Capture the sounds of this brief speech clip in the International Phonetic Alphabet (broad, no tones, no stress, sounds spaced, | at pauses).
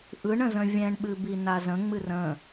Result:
ʔ ɯ ɳ ə̃ z ə̃ vʲ ɛ̃ ɳ ɓ ɨ b i n a z ə̃ ŋ͡m ɨ r ə̃